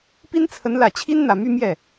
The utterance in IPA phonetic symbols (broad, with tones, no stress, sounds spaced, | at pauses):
p i˥ n t͡sʰ ə˧˥ n l ä˨˩ t͡ɕʰ i˥ n n̪ ä˨˩ m y˥˧ m j ɛ˥˩